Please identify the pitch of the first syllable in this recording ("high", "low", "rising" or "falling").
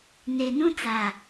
low